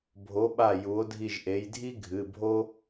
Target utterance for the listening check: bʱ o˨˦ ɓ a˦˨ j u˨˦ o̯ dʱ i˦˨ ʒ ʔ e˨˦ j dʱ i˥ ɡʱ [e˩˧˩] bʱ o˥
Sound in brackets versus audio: incorrect: ɨ˩˧˩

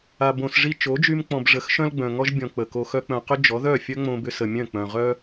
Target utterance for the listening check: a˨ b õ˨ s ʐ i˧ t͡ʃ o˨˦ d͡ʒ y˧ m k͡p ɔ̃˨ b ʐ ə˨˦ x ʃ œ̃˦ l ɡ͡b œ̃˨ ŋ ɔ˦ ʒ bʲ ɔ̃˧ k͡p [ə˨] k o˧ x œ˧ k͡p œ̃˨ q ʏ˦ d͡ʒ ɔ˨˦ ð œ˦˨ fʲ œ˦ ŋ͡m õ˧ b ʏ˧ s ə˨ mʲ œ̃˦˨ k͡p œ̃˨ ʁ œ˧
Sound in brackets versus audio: correct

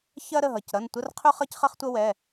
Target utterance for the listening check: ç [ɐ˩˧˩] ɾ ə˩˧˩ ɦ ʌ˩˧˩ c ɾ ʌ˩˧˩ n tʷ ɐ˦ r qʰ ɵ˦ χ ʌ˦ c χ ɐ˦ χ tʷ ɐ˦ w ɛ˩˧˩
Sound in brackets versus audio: incorrect: ɐ˦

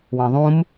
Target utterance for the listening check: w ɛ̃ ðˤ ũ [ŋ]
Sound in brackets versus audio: incorrect: m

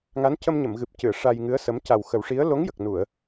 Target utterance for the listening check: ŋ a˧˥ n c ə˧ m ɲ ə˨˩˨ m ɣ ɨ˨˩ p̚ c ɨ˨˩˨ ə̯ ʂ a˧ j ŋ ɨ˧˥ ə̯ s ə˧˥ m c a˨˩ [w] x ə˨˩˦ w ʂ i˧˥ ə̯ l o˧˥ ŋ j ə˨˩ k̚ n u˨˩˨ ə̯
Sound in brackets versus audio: correct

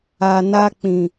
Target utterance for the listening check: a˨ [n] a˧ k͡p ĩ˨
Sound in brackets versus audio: correct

